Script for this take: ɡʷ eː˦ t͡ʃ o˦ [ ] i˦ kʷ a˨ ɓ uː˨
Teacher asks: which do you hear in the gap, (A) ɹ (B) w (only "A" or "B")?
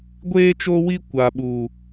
B